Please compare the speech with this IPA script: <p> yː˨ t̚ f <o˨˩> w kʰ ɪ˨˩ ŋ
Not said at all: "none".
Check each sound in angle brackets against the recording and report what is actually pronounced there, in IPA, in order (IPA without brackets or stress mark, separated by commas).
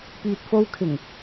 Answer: p, o˧